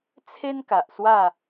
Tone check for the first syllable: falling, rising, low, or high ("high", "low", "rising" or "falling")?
high